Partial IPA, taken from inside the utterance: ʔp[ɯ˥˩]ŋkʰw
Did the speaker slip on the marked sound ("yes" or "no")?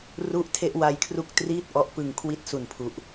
yes